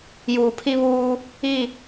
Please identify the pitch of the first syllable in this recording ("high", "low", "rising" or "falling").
low